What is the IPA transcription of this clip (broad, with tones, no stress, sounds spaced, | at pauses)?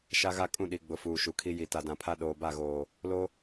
ʃ a˦ ɣ a˦ kʼ ũ˦˨ ɗ i˨ ɡ͡b ʊ˨ f uː˨ ʃ u˨ kʰ i˦ j i˨ t a˨ d ã˨ pʰ a˦ ɗ oː˨ b a˦˨ ɣ oː˨ | l o˦